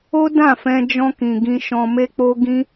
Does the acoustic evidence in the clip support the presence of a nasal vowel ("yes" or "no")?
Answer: yes